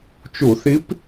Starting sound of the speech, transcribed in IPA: t͡ʃ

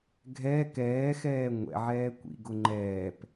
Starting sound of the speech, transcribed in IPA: ɡʱ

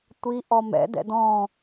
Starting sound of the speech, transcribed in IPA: tʷ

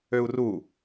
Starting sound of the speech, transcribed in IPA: ø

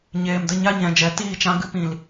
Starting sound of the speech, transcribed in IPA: ɲ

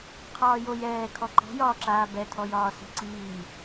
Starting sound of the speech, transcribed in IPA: qʰ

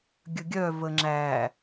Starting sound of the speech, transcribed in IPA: ɡʲ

